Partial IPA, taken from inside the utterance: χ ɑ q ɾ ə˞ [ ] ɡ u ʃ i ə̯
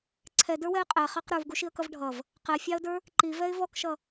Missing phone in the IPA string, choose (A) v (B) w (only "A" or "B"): A